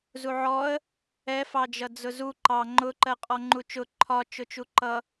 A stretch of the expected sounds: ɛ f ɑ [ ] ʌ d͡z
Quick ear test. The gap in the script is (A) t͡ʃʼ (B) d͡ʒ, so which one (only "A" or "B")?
B